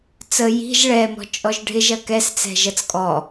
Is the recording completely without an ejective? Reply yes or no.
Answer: no